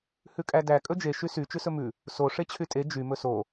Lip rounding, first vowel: rounded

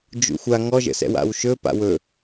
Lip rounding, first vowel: rounded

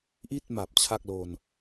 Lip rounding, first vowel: unrounded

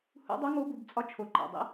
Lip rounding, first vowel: rounded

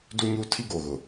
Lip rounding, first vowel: rounded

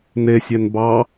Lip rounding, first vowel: unrounded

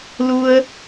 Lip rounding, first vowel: rounded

